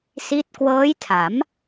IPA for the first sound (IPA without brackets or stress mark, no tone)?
s